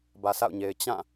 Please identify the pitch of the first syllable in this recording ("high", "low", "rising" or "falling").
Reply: low